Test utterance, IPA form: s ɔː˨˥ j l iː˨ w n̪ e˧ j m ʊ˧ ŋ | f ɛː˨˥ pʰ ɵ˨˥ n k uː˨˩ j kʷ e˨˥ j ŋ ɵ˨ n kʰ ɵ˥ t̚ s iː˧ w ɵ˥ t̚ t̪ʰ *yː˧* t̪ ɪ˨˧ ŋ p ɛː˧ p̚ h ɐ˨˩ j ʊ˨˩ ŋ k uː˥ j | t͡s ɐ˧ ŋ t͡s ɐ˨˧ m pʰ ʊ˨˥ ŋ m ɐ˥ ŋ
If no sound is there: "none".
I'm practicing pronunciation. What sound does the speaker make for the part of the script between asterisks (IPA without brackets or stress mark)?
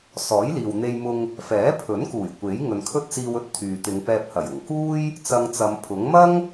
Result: yː˨